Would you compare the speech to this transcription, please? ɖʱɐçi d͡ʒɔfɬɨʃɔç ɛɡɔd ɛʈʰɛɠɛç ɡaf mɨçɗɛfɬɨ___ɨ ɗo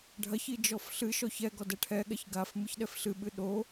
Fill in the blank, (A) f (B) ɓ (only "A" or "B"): B